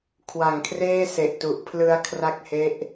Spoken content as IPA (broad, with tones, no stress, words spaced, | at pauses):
kʰwa˨˩ŋkʰreː˥˩se˨˩ʔtu˨˩ʔ pʰlɯ˧a̯kʰra˦˥k̚he˦˥ʔ